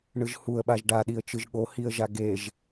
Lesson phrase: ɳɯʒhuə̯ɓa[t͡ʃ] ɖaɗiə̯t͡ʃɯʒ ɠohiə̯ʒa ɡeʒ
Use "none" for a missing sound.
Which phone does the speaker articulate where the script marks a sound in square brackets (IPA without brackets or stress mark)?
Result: ʒ